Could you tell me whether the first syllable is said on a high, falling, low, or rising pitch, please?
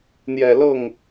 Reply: low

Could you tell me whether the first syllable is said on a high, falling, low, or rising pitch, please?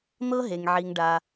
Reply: high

